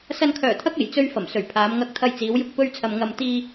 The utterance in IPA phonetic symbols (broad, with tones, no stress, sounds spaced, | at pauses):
s ɐ˨ n kʰ œː˨˩ t̪ʰ ɐ˧ k̚ e˨˩ j t͡s ɵ˧ ɥ f ɐ˨˩ m s ɵ˨˩ ɥ pʰ aː˨˧ m ŋ ɐ˧ k̚ t̪ʰ ɐ˧ j t͡s iː˨˧ w j ʊ˧ k̚ p ɵ˧ ɥ t͡sʰ ɐ˨ m ŋ ɐ˧ m t̪ iː˧